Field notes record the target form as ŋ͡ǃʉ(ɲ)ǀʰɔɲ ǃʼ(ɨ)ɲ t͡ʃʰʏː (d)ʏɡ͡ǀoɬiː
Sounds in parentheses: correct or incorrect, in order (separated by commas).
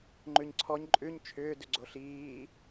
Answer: correct, incorrect, correct